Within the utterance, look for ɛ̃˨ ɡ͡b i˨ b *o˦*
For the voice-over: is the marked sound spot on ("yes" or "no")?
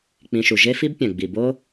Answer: yes